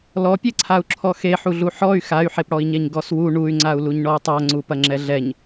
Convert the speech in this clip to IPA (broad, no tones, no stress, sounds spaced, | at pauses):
l ɔ pʲ e ǀʰ a u̯ ǁʰ ɔ x e ħ u ɮ u ħ ɔ y̯ x a y̯ ħ e p ɽ ɔ i̯ ɲ ɛ ɲ ɡ ɔ s w u ɳ u y̯ ŋ͡ǀ a u̯ l u ɲ ɳ ɔ u̯ tˤ a ŋ͡ǀ u p ɐ ŋ͡ǁ ɛ ɮ ɛ ɲ